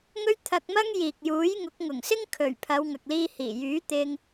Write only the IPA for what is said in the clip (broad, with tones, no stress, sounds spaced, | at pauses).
ŋ ɵ˥ ɥ t̪ʰ ɐ˧ k̚ m ɐ˥ ŋ j iː˨ k̚ j uː˨˥ j ŋ ʊ˨˥ k̚ ŋ ʊ˨˩ ŋ s ɪ˥ ŋ kʰ ɵ˨˩ ɥ pʰ ɐ˨˧ w ŋ ɐ˨ k̚ l iː˧ h iː˨˩ j yː˨˥ t̪ ɪ˧ ŋ